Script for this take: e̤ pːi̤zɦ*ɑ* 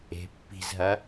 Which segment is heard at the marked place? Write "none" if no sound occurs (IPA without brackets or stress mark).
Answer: ɐ